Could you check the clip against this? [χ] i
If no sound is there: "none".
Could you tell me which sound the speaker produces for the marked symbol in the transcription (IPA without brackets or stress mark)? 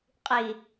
qʼ